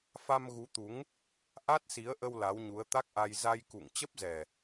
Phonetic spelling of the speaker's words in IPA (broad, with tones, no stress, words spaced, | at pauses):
fa˧mɣu˨˦t̪u˨˦ŋ | ʔa˦˥t̚si˨˦ə̯ʔə˧w la˨˦wɲu˨˦ə̯t̪a˦˥k̚ʔa˧j za˧jkṵ˧˨ŋ t͡ɕə˦˥p̚zɛ˨˩